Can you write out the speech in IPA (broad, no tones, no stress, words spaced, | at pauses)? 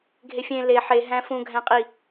ɡʱefʲẽ le ħe ɦæ̃fũ ɡʱæ̃qʼi